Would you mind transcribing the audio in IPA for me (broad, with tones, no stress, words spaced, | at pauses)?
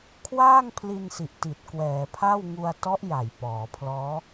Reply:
kʰwaː˥˩ŋ pʰli˧nsi˨˩ʔti˨˩t̚ kwɛː˩˦pʰa˥˩w ŋu˧a̯tɔ˦˥ʔ ja˨˩jpɔː˩˦ pʰlɔː˦˥